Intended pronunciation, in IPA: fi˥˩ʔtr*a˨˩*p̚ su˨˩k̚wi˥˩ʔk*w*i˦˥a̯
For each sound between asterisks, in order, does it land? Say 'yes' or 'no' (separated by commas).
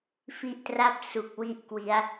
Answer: no, yes